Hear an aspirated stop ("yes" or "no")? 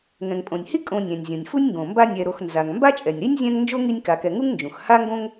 no